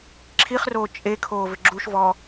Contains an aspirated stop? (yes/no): yes